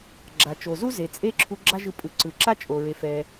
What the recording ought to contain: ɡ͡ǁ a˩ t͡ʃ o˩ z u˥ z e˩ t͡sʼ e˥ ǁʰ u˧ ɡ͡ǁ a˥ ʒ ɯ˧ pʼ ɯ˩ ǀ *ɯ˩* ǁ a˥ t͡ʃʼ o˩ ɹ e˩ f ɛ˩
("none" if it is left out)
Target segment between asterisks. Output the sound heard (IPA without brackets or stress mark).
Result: ɯ˩